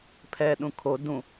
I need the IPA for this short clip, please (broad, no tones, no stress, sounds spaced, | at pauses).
pʰ ɛ ɗ ũ kʰ o d ũ